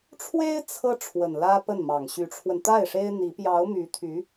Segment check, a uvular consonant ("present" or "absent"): absent